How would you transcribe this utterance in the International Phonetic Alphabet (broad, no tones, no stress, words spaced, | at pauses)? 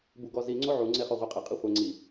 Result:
buɡɔzi ŋ͡ǀoʕuŋ͡ǀeχɔ ʁʷɛqʼɘqʼi χʷɐ ŋ͡ǀi